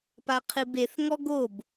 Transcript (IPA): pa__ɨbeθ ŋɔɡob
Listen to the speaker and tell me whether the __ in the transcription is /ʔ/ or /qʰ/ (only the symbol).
qʰ